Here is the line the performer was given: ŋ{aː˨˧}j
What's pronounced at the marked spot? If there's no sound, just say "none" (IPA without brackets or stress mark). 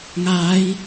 aː˨˧